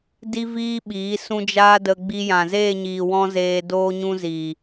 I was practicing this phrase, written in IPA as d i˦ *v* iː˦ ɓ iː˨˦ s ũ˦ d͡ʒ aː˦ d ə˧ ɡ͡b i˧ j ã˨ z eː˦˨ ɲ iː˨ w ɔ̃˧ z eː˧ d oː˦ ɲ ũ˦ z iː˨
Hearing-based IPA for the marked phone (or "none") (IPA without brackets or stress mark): v